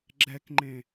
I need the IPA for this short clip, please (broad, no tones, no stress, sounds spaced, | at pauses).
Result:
ɡ͡ǁ ɛ k ŋ͡ǃ ẽ